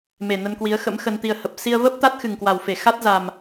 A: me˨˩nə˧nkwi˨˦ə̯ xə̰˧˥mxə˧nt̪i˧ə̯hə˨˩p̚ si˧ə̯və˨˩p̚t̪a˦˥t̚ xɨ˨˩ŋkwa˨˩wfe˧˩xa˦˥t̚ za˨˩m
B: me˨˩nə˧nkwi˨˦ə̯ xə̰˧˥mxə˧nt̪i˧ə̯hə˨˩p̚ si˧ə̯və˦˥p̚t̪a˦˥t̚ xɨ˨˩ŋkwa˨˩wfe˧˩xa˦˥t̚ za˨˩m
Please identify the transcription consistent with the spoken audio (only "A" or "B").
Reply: B